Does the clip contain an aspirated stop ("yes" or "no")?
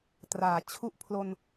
yes